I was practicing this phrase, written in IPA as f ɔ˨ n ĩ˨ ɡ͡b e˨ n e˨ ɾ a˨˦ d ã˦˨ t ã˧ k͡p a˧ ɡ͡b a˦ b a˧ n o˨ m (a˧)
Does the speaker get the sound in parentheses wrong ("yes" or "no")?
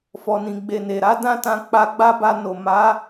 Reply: yes